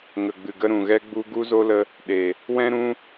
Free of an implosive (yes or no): no